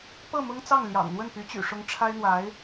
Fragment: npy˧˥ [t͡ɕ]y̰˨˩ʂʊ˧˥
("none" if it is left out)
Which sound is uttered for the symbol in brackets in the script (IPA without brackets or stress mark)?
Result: t͡ɕ